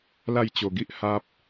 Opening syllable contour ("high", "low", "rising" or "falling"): falling